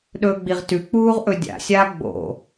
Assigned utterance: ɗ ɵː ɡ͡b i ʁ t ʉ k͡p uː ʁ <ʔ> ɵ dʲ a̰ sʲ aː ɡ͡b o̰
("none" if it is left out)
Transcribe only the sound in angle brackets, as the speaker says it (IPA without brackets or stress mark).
ʔ